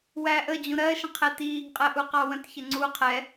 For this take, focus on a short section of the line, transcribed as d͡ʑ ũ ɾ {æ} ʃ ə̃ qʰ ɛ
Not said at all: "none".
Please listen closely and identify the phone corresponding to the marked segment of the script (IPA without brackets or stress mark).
ɜ